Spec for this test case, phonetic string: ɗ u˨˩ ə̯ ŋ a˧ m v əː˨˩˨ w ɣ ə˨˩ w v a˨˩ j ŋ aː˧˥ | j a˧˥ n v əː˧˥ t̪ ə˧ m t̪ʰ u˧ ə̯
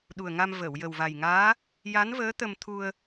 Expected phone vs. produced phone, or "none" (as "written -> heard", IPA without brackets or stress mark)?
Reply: ɣ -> j